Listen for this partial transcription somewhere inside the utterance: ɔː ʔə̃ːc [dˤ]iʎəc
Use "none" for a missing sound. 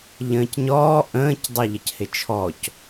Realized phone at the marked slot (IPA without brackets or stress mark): dˤ